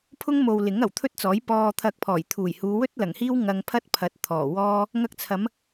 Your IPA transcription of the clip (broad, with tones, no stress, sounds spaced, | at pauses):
pʰ ʊ˥ ŋ m o˨ w l ɪ˨˥ ŋ ɐ˨˩ w t̪ʰ ɵ˥ t̚ t͡s ɔː˨˥ j p ɔː˧ t̪ʰ ɐ˧ k̚ pʰ ɔː˨˩ j t̪ʰ uː˨˩ j h uː˨˧ w ɵ˥ t̚ l ɐ˨˩ ŋ h iː˥ w ŋ ɐ˧ ŋ pʰ ɐ˥ t̚ pʰ ɐ˨˥ t̚ t̪ʰ ɔː˨˩ w ɔː˥ | ŋ ɐ˧ k̚ t͡sʰ ɐ˨˧ m